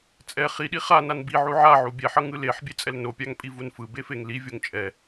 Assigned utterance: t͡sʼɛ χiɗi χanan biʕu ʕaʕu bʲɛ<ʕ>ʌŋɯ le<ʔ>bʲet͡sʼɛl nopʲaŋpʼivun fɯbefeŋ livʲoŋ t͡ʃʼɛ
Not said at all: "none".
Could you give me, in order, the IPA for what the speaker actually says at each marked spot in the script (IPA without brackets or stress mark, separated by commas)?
ħ, ħ